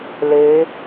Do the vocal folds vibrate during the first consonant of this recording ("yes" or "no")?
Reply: yes